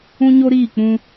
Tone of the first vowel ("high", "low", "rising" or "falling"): high